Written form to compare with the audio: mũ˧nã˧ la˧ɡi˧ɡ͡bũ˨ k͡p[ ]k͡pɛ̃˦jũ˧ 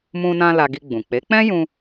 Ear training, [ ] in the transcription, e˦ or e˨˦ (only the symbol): e˨˦